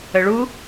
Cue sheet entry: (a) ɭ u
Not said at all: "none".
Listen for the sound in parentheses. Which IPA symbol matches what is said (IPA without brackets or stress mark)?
ə